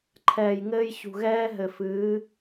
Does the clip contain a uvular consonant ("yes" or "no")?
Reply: no